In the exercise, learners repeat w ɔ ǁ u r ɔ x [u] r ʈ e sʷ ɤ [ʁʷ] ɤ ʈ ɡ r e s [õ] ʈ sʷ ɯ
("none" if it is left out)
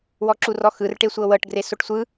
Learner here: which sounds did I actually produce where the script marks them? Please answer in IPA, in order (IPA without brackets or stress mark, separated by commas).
ɯ, w, o